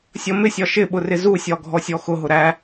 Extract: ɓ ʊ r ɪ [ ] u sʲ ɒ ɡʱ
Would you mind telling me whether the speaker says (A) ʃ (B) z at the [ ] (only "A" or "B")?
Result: B